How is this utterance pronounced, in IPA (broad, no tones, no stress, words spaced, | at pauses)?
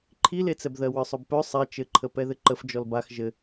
ǃʰilet͡sɛbðɜ wə˞sˤœbpœ sˤɛ t͡ʃɘǃʰə pɛðɘǃəf d͡ʒɔlbax ʒɘ